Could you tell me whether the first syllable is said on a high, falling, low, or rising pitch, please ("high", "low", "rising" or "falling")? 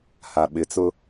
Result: low